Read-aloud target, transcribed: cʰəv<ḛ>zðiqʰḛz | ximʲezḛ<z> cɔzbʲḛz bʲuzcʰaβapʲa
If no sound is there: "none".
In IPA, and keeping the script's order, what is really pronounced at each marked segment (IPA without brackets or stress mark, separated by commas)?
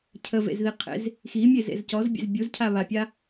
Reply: ḛ, z